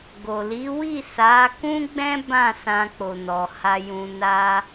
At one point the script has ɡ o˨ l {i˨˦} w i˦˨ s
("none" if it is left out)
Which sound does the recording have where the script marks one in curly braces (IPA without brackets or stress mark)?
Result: i˨˦